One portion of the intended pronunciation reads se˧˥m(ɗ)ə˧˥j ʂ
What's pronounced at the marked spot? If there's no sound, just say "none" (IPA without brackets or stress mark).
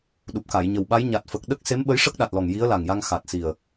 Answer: ɓ